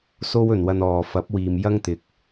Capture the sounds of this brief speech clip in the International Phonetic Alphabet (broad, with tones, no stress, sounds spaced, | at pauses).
s o˥ w ɵ˨ n w ɐ˧ n ɔː˨ f ɐ˨˥ p̚ w iː˨ m j ɐ˥ ŋ t̪ ɪ˨ k̚